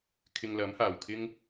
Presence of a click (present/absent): absent